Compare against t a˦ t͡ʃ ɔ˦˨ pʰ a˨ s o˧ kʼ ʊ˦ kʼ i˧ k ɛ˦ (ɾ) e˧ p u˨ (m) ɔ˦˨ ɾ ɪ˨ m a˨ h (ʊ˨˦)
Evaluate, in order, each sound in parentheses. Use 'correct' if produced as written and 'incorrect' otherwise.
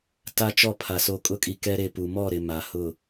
correct, correct, incorrect

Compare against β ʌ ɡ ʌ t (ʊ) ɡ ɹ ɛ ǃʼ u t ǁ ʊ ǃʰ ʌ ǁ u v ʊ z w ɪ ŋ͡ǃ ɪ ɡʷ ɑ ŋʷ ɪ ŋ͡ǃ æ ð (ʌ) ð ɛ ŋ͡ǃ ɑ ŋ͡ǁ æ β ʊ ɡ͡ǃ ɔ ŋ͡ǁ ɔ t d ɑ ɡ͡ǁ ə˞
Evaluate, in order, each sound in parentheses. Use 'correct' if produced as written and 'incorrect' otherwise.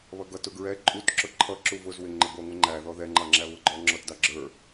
correct, incorrect

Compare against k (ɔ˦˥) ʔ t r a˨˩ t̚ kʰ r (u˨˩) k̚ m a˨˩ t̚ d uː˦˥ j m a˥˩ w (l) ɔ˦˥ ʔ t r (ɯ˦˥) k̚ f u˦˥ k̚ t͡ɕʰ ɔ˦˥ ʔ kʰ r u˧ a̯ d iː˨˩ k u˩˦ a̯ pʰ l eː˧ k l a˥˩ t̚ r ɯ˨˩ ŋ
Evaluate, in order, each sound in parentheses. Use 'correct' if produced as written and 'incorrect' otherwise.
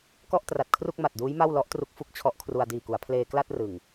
incorrect, incorrect, correct, incorrect

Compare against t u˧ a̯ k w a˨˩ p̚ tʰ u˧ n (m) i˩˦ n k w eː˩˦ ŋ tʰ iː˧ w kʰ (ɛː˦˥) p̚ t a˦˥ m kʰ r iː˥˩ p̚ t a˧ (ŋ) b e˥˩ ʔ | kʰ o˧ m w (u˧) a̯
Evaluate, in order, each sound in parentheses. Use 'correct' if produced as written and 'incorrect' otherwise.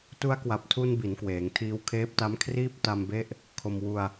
incorrect, incorrect, incorrect, correct

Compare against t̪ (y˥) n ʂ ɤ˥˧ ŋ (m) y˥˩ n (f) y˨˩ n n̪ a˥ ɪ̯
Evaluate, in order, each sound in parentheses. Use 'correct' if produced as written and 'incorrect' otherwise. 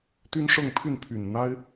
correct, incorrect, incorrect

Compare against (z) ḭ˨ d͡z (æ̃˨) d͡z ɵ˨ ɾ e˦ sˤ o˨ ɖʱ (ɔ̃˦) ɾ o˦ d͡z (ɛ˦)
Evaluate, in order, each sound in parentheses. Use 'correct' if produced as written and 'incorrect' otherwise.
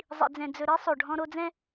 incorrect, incorrect, correct, incorrect

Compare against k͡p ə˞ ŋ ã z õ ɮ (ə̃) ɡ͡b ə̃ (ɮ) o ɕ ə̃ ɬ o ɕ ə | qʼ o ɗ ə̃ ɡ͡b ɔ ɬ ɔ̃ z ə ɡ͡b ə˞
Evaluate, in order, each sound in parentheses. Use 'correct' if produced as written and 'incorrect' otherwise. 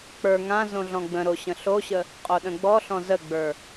incorrect, incorrect

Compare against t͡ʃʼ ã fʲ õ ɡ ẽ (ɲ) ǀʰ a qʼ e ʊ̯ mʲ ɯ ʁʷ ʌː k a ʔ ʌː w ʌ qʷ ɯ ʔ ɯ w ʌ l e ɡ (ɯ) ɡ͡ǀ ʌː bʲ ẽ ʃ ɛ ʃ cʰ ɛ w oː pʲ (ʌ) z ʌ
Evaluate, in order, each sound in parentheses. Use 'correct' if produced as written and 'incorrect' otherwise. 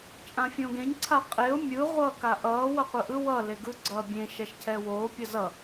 correct, correct, correct

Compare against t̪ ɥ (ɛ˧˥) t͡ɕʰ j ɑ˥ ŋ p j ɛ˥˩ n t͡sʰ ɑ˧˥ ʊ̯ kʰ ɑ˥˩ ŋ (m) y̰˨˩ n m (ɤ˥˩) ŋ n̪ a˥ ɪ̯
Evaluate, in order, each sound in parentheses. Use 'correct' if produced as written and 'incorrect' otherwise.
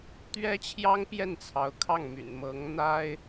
incorrect, correct, incorrect

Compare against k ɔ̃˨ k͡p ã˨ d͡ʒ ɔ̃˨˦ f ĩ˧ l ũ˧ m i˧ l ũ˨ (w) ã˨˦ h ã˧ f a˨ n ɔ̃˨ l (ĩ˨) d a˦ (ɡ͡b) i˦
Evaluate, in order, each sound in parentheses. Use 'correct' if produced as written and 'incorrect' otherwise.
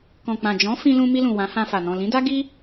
correct, incorrect, incorrect

